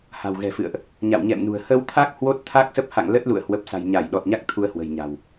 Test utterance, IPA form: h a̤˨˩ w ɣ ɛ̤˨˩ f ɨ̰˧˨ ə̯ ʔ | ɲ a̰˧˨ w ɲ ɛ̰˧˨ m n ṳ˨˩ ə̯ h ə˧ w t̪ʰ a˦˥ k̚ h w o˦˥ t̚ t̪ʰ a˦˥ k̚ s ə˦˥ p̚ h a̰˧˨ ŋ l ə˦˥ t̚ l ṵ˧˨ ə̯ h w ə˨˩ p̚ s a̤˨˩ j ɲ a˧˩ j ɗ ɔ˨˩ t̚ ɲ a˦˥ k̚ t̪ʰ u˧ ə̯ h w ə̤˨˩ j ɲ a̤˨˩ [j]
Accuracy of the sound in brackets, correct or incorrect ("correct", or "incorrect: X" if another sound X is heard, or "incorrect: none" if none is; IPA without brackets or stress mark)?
incorrect: w